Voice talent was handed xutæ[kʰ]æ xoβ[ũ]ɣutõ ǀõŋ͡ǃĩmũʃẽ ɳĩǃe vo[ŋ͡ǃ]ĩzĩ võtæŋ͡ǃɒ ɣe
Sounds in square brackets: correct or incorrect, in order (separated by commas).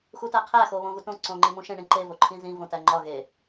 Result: incorrect, incorrect, incorrect